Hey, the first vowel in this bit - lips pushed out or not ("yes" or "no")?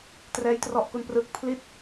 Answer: no